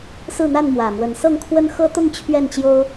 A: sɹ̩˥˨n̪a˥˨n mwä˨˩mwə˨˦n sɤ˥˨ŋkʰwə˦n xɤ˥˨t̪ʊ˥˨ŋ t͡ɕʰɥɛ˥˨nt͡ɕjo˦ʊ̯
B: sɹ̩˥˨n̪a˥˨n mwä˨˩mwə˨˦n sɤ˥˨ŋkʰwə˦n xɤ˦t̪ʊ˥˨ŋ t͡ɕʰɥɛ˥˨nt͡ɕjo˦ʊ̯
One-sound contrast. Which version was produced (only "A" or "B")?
B